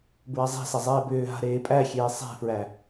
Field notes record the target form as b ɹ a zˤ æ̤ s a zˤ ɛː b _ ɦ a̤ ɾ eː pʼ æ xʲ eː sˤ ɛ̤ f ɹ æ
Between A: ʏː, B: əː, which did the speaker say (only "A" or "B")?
A